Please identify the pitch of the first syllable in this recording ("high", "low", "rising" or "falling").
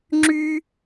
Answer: high